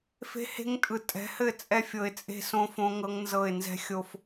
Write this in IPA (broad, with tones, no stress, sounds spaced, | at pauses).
f e̤˦ h e̤˦ ŋ tʼ ɯ˨ tʼ ɛ̤˨˦ h ɘ˦˨ t͡sʼ ɛ˦ fʲ ɤ˨ ɪ̯ t͡sʼ e̤˦ s õ˦ f õ˦ ŋ ɤ˦ ŋ n z ɤ˦˨ ɪ̯ n z ɛ̤˦ xʲ o˦ f